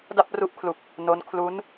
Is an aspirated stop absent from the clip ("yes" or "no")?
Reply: no